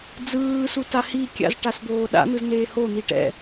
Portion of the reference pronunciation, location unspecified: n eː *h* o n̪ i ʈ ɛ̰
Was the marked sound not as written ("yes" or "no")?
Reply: no